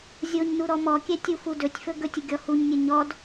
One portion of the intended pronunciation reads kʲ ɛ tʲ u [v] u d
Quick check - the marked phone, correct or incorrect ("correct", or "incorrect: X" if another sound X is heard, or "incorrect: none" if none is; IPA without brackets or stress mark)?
incorrect: f